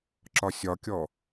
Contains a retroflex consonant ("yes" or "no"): no